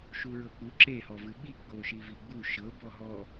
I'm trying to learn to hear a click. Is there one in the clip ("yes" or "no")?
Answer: yes